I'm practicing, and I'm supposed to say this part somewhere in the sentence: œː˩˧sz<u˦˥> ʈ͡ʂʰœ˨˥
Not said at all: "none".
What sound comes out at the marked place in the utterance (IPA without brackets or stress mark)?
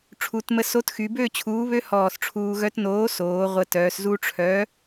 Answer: u˦˥